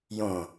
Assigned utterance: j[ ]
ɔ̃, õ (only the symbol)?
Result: õ